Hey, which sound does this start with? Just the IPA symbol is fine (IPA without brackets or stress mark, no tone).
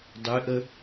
dˤ